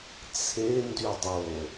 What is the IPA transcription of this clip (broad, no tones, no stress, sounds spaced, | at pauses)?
t͡sʰ e n d y dˤ o